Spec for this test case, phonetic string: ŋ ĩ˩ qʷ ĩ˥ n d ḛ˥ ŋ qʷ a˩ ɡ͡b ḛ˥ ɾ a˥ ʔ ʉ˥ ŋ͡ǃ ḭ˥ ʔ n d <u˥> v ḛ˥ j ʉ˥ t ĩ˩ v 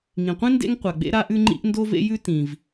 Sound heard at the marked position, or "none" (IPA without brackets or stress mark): o˥